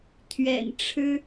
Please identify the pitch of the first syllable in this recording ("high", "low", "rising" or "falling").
low